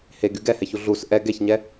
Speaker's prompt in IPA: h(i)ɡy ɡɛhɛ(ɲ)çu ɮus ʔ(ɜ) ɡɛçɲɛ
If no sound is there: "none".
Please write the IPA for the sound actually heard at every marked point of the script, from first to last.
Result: e, none, ɛ

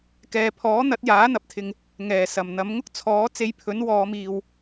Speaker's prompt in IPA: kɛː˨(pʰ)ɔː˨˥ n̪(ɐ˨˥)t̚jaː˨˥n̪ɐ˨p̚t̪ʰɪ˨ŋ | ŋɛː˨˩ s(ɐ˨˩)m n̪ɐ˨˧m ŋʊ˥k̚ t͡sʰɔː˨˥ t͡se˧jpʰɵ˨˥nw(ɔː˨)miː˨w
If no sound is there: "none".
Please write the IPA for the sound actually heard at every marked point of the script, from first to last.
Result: pʰ, ɐ˨˥, ɐ˨˩, ɔː˨˧

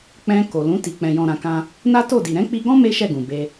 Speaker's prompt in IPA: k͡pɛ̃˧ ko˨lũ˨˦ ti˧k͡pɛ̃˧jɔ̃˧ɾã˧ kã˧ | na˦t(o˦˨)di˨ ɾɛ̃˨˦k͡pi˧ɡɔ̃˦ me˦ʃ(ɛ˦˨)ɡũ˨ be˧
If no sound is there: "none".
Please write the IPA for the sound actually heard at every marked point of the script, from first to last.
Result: o˦˨, ɛ˦˨

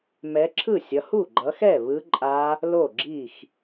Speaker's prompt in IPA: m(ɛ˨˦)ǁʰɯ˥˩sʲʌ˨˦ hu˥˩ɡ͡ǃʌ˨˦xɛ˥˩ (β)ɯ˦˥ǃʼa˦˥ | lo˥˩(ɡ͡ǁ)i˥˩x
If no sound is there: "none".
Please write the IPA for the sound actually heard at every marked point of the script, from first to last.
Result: ɛ˨˦, β, ɡ͡ǁ

